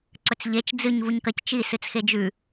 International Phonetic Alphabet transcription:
ǀ ɵ t͡s ʎ e t͡ʃ d͡z ɨ ɲ v u ɲ k ɐ c t͡ʃ i s ɨ t͡s x e d͡ʒ ʉ

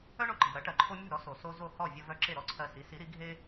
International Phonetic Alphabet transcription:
œ˥ ɳ o˧ ǃ e̤˩ ɾ ɐ˩˥ ʈ ɜ˩ ǃʰ o˧ mʲ o̤˥˩ ɾ ɔ˩˥ s o˩ s o˧ z o˥˩ h ɔ˥˩ vʲ ɐ˧ v œ˧ ǁ e˥˩ ɾ ɔ˥ ǀʰ ɜ˧ s i˩˥ s i˩˥ ɾ i˩˥ ɡʱ e˥

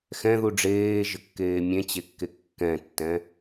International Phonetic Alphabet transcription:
x ɛ̃ ð u ɖ͡ʐ eː ʒ ə kː eː mʲ ẽ t͡ɕ e kː e kː ɛ̃ tː ɛ̃

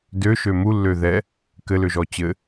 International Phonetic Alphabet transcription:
d ø ʃ ø m u lː ø ð ɛ | k ɘ l ø ʒ ɔ t͡ɕ ɘ

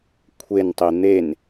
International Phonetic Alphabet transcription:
kʷʰ e n tˤ i n̪ e n

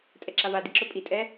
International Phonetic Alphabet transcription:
tʼ ɛ ǁ a v a d i ǁ ɵ pʼ i tʼ ɛ

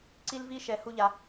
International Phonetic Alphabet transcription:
ǀ i˦ l v i˦ ʃ ɛ˨ h u˦ ʎ a˨

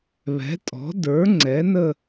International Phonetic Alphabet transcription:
β ɛ̤˩˥ tʼ ɔ̤˩˥ d ə˞˩˥ ŋ͡ǀ ɛ˩˥ n ə˥˧

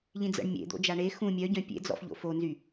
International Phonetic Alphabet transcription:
ʎ ĩ d͡z ə̰ ɳ mʲ ḛ d̪ o̰ d͡ʒ a ɳ e x ũ mʲ œ ɟ œ̃ pʲ ḛ d͡z ɔ̰ f ʎ o̰ f o n z y

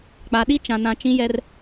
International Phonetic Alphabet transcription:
k͡p a˨ ɗ i˦ t͡ʃ ã˨ n ã˨ t͡ʃ ĩ˦ j ɛ˦ r

